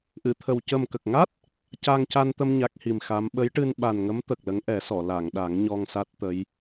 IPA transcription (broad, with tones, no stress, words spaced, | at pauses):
ʔɨ˨˩˨t̪ʰə˨˩w cə˨˩mkə˨˩k̚ŋa˦˥t̚ | ca˧ŋca˧nt̪ə˧m ɲa˦˥k̚hi˨˩mxa˧˥m ɓə˧˥jʈɨ˧n ɓa˨˩nŋə˧˥m t̪ə˨˩k̚lə˧˥ŋʔɛ˨˩˦sɔ˨˩˨ la˨˩˨ŋɗa˨˩˦ŋ ɲɔ˧ŋsa˦˥t̚t̪ə˧˥j